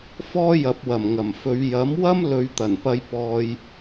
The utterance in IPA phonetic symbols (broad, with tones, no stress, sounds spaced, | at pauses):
f ɔː˥ j ɐ˨˥ p̚ w ɐ˨˩ m ŋ ɐ˨˩ m f ɵ˨˧ ɥ j ɐ˨˥ m w ɐ˥ m l ɵ˨˧ ɥ t̪ ɐ˨˩ n p ɐ˧ j p ɔː˧ j